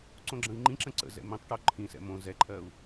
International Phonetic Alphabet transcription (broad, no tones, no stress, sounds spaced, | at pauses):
ǀ õ ɡ͡ǁ ə̃ i̯ ŋ͡ǃ ĩ ǁ ə̃ ǀ ə̰ z ɛ̰ m ĩ tˤ ʈ o ǃʰ ĩ s ɛ̰ m õ z ɛ ǃʰ ɜ u̯